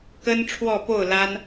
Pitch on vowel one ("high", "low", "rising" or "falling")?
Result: high